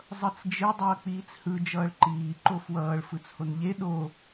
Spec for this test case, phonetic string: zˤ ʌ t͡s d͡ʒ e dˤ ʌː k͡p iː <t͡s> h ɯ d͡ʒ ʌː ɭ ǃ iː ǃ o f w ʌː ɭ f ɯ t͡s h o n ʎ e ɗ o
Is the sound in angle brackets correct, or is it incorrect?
correct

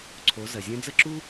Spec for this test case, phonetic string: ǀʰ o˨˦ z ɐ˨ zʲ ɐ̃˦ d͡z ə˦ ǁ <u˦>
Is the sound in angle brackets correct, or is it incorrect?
correct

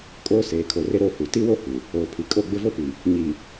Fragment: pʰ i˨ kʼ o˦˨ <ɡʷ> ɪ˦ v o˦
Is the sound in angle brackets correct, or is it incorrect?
incorrect: ɡ͡b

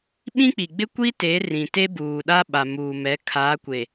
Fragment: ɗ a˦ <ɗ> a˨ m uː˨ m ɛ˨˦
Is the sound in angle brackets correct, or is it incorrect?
incorrect: ɓ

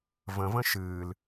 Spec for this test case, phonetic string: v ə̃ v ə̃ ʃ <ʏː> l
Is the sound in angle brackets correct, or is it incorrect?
incorrect: ɨː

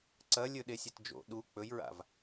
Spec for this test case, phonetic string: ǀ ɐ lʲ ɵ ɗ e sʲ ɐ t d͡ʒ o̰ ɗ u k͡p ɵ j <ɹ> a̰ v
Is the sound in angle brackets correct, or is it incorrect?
correct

